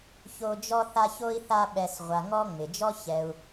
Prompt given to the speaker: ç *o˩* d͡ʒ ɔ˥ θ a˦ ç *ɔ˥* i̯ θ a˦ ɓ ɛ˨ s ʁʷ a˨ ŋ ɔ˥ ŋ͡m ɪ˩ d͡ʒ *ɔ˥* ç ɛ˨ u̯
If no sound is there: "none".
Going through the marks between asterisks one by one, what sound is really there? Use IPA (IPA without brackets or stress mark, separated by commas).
o˦, o˥, ɔ˥